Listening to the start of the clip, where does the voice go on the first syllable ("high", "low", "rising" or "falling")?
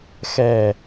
low